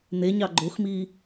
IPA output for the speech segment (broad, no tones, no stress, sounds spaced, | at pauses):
n̪ e ɲ ɑ ɡ͡ǃ o x m iː